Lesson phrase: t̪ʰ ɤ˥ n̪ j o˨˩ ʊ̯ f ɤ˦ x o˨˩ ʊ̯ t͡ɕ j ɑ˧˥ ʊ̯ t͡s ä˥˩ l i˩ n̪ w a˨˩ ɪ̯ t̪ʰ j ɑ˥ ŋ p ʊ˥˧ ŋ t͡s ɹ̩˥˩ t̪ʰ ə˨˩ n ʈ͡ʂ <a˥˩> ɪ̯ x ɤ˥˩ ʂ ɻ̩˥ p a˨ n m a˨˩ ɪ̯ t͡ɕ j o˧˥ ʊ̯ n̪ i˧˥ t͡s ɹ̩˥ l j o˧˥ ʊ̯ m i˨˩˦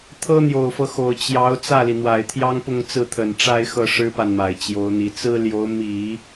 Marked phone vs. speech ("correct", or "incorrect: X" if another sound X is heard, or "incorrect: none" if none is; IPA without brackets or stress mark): incorrect: a˥